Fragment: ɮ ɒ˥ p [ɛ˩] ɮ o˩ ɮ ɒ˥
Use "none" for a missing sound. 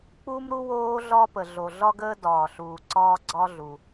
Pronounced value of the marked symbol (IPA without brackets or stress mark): ə˩